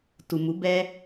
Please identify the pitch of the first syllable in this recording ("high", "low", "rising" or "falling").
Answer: low